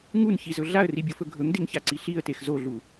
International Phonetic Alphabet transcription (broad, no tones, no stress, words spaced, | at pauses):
ŋunçizɵ ɮaə̯ribʲofɵ ɡʱɵŋdeŋçaǀi ɬiə̯tex zoɮu